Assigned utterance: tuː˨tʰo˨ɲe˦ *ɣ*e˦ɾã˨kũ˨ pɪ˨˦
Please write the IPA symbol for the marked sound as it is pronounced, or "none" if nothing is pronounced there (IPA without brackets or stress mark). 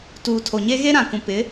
ɣ